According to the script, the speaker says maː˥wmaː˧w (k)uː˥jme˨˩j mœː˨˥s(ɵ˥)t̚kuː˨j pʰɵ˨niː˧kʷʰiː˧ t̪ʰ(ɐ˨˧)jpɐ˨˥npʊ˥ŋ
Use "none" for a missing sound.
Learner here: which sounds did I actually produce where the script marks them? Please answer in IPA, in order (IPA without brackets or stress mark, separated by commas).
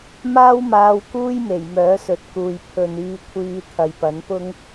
k, ɵ˨, ɐ˨